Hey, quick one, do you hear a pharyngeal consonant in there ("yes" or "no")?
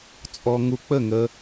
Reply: no